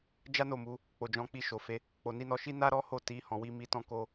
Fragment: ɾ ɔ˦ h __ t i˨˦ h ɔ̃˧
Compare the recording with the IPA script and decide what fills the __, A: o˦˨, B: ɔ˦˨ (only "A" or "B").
A